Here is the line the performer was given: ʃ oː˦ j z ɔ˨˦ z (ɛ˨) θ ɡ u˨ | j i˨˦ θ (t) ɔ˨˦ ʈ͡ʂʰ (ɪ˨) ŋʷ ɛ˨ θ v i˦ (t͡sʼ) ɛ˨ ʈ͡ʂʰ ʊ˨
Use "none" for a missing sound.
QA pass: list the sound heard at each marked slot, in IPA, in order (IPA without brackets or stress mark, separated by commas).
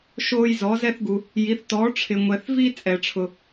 ɛ˦, t, ɪ˨, t͡sʼ